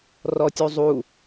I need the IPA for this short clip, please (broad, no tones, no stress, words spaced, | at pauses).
rɔtʲuzˤu